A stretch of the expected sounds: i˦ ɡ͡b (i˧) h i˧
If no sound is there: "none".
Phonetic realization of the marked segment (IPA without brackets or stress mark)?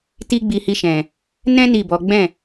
i˧